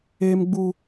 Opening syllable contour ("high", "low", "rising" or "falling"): high